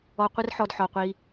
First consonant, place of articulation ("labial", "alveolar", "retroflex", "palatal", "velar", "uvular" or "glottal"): uvular